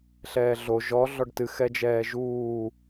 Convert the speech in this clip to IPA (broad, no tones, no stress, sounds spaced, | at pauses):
ɬ ɛː ɮ o ʒ ɔ ɮ ɔ ɖ t ɨ x ɛ d͡ʒ ɛː ʒ uː